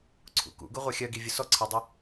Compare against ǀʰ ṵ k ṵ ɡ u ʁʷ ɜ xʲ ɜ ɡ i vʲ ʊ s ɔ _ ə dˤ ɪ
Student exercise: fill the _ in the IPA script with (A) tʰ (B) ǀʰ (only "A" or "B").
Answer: B